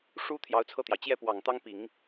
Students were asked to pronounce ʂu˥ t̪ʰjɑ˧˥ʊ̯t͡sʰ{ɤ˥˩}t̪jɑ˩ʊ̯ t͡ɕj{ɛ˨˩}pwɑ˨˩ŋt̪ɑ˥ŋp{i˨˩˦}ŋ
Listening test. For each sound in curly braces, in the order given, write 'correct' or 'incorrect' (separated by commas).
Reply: correct, incorrect, correct